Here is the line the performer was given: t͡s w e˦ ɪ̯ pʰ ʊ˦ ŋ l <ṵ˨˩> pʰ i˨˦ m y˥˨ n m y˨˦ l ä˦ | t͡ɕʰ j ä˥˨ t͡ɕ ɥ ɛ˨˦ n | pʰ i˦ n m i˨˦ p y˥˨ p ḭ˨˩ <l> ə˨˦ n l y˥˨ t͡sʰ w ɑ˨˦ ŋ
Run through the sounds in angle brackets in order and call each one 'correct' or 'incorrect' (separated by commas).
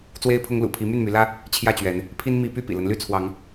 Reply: correct, correct